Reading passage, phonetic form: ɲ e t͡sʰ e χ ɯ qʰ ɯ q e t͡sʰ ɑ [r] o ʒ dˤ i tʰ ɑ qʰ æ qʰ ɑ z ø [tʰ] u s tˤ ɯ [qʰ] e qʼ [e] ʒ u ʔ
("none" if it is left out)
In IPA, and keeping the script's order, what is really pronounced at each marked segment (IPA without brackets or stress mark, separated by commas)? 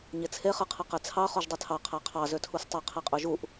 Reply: χ, tʰ, qʰ, ø